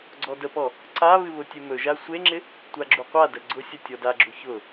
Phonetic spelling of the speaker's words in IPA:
ɡ͡ǀ ɔ d ə p ɔ | ǀ a β ɨ β ʊ tʲ e m ɵ ʒ a sʷ e ŋ͡ǁ ɪ | tʷ a ɡ͡ǁ u qʷ a d ə ɡ͡ǀ ʊ sʲ ə tʲ ɔ d a ɡ͡ǁ u ç ʊ

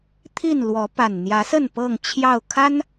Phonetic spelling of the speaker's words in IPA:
t̪ʰ i˥˨ n l w ɔ˨˦ p a˨˩ n n̪ j ä˨˦ s ə˥˨ n p ɤ˥˨ ŋ t͡ɕʰ j ɑ˥˨ ʊ̯ kʰ a˦ n

